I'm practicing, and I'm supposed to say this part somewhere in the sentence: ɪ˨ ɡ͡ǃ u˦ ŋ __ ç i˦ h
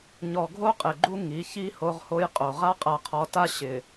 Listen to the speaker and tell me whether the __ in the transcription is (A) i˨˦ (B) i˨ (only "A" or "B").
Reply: A